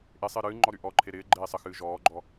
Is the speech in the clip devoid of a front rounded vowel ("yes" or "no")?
no